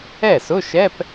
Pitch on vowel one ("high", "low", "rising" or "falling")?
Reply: falling